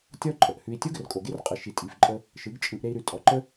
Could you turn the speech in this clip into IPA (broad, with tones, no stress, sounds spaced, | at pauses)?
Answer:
tʲ ɔ˦ ǃʼ ə˨ ʔ h ʉ˧ i̯ tʲ o˦ ɡ ə˨ r kʼ o˨ ɡ e˦ r qʼ ɯ˨ ʃ i˨ tʼ i˨ f ǃʼ ə˧ | ʃ ɯ˨˦ ɡ t͡ʃʼ ɯ˧ ʔ ɾ e˧ i̯ ɾ ʉ˨ tʼ ɔ˨ ǃ ə˦